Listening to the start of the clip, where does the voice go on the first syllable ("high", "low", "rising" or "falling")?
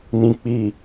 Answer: low